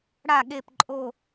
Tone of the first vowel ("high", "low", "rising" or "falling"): falling